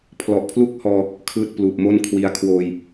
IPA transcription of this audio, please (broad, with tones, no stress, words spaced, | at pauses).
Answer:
pʰlɔ˨˩ʔpʰlu˥˩k̚hɔː˧ | kʰɯː˥˩t̚pluː˨˩p̚mo˥˩nkʰwi˦˥a̯ kʰwoː˧j